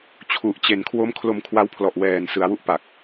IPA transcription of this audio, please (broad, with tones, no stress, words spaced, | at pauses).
t͡ɕʰu˨˩ʔt͡ɕe˨˩nkʰwo˦˥m kʰlo˧mkʰwa˧wpʰlɔ˨˩ʔ wɛː˨˩nsɯ˩˦a̯wu˦˥ʔpa˨˩k̚